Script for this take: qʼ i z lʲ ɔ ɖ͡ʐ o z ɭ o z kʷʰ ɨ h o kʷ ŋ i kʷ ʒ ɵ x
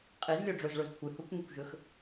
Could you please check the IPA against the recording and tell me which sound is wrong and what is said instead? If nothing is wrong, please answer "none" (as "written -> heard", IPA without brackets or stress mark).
none